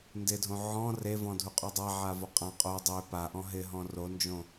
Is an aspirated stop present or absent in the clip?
absent